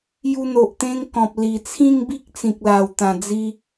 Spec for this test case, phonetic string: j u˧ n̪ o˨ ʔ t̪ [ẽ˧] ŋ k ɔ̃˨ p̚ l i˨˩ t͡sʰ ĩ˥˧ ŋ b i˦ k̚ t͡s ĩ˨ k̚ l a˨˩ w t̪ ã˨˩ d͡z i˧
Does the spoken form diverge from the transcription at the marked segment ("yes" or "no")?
no